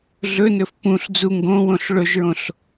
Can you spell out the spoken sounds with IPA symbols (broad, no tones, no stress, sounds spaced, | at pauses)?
ɮ ɵ n ɵ f p ũ ɬ d͡z u ŋ ɡ õ w õ ɬ ɭ ɵ ʒ ɹ õ ɬ